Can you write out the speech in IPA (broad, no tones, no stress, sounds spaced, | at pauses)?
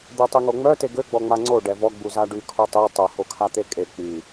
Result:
d̪ œ tˤ i ŋ o ŋ͡m œ t e ɡ ø ɡ͡b ɔ ŋ͡m a ŋ͡ǀ o ɖ ɛ v ɔ ɡ͡b u z a ɖ y kʰ o tˤ i tˤ ø h o kʰ a t̪ e kʼ e k͡p y